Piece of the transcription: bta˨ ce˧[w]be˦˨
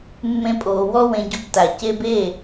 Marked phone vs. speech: incorrect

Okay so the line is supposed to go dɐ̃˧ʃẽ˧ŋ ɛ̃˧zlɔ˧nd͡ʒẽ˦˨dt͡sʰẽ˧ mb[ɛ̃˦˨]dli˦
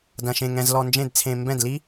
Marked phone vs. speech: correct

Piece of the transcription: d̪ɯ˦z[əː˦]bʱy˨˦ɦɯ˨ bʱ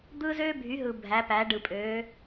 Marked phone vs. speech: incorrect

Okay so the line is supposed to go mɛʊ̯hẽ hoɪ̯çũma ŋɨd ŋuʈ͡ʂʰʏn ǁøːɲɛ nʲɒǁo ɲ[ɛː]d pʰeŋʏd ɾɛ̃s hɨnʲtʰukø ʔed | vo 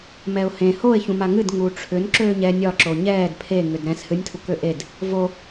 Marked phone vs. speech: correct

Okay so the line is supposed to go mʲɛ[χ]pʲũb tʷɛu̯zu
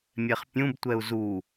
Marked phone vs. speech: correct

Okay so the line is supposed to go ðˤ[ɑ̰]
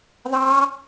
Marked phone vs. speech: incorrect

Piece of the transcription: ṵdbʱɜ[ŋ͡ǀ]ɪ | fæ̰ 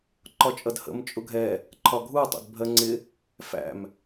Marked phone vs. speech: correct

